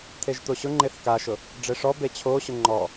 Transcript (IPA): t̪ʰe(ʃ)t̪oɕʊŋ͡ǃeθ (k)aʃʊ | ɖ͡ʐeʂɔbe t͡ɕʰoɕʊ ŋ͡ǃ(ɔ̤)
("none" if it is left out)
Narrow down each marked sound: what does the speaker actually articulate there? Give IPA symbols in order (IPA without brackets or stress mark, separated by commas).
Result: ʒ, k, ɔ